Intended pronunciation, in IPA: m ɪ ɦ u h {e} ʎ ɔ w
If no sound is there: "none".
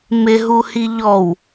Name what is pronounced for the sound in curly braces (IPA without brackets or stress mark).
i